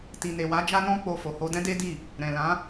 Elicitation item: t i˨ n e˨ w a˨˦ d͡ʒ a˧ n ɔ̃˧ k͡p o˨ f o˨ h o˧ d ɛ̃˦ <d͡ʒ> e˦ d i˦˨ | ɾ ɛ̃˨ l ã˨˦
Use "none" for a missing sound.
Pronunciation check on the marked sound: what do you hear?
d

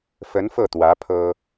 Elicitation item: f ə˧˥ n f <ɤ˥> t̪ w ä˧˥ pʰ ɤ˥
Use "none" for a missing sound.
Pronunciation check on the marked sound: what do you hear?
ɤ˥˩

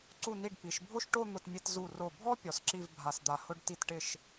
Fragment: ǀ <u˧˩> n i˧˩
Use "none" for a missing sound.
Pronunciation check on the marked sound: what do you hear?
u˧˩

